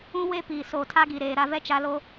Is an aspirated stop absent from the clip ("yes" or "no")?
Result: no